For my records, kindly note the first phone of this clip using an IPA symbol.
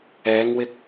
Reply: ɛː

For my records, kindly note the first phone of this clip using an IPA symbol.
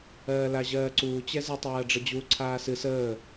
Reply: ɜː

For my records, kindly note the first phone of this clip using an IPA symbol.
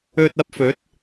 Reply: ɵ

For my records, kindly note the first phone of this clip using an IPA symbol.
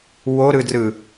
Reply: w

